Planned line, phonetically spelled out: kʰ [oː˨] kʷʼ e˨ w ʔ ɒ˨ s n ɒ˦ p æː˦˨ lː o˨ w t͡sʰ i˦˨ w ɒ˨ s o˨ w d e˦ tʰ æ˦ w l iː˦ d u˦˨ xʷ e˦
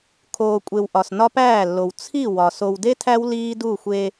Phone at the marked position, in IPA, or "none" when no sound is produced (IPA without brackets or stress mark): oː˨